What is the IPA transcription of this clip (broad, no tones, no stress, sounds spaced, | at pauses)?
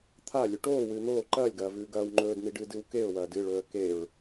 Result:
t̪ʰ a lʲ ʉ ʈ oː w ɨː n̪ oː ǃ ɐː lʲ ɡ ɐː v ʉː ɡ ɐː w ŋ͡ǃ ɵː d n̪ i ɖ ɨː d ɨ w k e ʊ̯ w ɐː d ɨ ɭ ɵː ə̯ k e ɹ